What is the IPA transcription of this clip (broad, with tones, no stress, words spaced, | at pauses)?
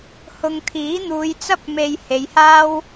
hʊ˨ŋt̪ʰiː˨˥n̪uː˨˧jt͡sɐ˥p̚ me˧jhe˨˧jhaː˥w